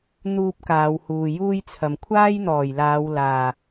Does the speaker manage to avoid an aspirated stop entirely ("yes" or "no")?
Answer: no